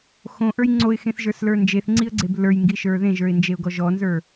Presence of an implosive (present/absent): absent